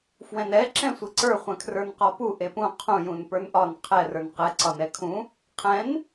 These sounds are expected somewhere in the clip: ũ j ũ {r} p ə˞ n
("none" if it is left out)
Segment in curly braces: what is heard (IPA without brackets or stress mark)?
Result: n